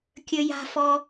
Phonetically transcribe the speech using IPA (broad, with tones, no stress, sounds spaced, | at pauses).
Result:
kʲ ə˥ j a̤˥ f ɔ˥